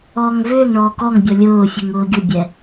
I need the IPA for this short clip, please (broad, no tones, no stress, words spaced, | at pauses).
ɔːŋvʏːŋɳɔː kɔŋ bʲɔlʲʊːfʲuŋ ʊːɡʲʊbʲɛ